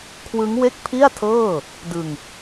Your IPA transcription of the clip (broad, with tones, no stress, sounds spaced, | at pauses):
kʰ w ɯ˦˥ ŋ w e˥˩ k̚ pʰ i˥˩ a̯ tʰ ɤː˥˩ | d ɯ˧ ŋ